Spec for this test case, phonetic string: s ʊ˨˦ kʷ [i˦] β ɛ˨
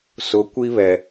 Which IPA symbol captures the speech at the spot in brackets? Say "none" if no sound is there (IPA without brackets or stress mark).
i˦